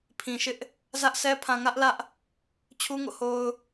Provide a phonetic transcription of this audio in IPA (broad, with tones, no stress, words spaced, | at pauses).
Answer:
pʰĩ˨ʃɪ˦ʔ | zä˦ʔsʰɛ˦ pʰã˨ŋä˦ʔlä˦ʔ | t͡ɕʰu˦ŋo̰˦˨ho˦ʊ̯